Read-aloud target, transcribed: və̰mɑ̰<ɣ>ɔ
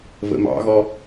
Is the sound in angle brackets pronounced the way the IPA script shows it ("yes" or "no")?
yes